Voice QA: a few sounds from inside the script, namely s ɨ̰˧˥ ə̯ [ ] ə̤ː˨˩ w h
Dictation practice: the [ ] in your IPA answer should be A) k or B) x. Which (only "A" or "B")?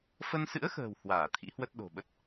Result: B